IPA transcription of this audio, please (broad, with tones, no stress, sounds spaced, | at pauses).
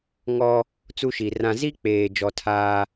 ŋ ɔ˦ | t͡s u˦ ʃ i˨ r ã˦ z i˦ k͡p eː˨ d͡ʒ ɔ˦ tʰ aː˦